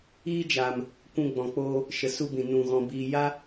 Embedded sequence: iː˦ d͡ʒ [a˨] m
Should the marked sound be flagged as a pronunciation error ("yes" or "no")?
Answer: no